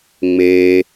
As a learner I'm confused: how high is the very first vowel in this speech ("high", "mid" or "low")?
mid